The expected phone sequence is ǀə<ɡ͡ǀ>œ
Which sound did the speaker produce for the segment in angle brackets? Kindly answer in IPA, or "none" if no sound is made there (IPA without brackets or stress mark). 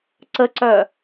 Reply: ǀ